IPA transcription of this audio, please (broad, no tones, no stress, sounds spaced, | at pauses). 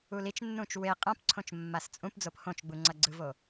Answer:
u l i t͡ʃ nː ũ t͡ʃ w e qʼ ã p ǀʰ õ t͡ʃ mː a s t͡sʼ ũ p d͡z o p h õ t͡ʃ ɡ͡b u ŋ͡ǀ ʌ ɡ͡ǀ ɯ v o